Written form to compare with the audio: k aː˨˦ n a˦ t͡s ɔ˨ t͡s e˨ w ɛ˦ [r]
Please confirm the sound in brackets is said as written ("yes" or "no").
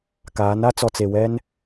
no